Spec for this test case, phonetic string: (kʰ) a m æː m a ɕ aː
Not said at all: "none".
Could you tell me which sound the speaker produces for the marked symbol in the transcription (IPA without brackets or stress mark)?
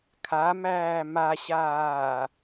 kʰ